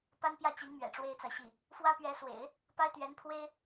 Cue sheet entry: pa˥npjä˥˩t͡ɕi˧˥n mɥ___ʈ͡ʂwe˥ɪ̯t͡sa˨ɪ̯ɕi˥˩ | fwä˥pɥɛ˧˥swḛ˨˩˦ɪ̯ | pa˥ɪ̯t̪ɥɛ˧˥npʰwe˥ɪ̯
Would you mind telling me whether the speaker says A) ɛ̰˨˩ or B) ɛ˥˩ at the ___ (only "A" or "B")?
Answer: A